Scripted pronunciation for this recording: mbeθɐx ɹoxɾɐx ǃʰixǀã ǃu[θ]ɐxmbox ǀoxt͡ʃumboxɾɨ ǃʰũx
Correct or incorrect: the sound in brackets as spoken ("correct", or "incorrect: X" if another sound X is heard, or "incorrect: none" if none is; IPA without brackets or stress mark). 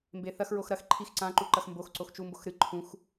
incorrect: ǃ